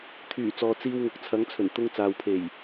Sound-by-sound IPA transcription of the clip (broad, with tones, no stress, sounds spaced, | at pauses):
t̪ʰ yː˨˩ t͡s ɔː˨ t͡s iː˧ w ŋ ʊ˨ k̚ t͡sʰ ɐ˨˥ ŋ t͡sʰ ɵ˨˩ n t̪ ʊ˧ ŋ t͡s aː˨ w pʰ e˨˩ j